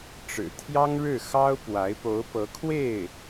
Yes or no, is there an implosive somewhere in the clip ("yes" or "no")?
no